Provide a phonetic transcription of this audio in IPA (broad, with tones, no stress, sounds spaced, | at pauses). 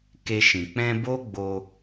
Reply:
k e˧ ʃ ĩ˨ k͡p ɛ̃˦ b o˦ ɡ͡b o˧